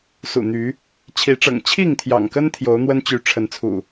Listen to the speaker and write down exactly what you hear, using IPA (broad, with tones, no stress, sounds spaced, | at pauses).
s ṵ˨˩ n̪ y˨˦ | t͡ɕʰ i˨˦ ʈ͡ʂ ɤ̰˨˩ ŋ t͡ɕʰ i˥˨ ŋ t̪ʰ j ɑ̰˨˩ ŋ k ə˦ n t̪ʰ j o˨˦ ʊ̯ n̪ w ə˦ n t͡ɕ y˨˦ ʈ͡ʂʰ ə˨˦ n t͡sʰ ṵ˨˩